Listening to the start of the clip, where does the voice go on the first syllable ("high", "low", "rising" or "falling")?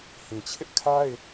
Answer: low